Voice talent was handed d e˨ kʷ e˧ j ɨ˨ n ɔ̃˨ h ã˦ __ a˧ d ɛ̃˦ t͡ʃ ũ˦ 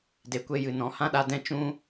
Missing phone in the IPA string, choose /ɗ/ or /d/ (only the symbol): ɗ